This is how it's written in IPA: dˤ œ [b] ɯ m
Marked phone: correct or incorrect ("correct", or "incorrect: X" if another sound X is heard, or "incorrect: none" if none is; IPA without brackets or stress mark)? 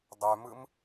incorrect: m